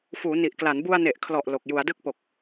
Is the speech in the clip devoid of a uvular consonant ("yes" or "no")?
yes